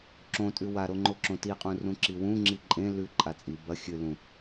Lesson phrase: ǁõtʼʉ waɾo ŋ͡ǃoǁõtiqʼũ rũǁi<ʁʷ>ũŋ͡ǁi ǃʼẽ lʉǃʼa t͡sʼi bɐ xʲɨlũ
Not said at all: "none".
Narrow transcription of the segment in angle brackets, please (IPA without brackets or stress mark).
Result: w